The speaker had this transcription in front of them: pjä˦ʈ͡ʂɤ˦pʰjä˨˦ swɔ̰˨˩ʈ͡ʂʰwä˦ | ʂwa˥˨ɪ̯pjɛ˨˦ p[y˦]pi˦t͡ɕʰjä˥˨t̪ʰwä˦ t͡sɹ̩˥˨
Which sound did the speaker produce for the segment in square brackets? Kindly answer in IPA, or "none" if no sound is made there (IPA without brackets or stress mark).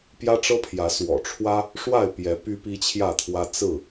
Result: y˦